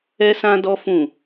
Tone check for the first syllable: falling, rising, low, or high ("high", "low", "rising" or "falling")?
high